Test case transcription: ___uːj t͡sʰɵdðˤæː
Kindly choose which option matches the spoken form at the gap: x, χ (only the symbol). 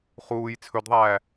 χ